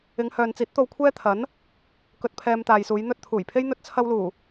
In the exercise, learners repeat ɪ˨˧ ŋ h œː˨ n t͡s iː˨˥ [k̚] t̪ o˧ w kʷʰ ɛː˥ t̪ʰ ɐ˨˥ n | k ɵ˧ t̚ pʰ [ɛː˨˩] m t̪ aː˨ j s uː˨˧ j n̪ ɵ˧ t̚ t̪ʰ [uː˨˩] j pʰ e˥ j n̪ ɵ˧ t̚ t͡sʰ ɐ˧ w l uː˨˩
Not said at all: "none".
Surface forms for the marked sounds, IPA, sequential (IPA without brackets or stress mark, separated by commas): t̚, ɛː˧, uː˨˩